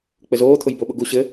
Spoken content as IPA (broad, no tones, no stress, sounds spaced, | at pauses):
k͡p ɘ z oː t̪ʰ ʊ j b o ɓ ʊ ɡ u ɕ ɘ